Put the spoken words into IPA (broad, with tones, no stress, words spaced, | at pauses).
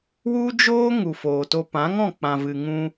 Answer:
wu˦d͡ʒoː˦ ŋu˨ foː˨to˧ pã˨˦ŋɔ̃˦˨ k͡pã˨vɨ˨ŋũ˧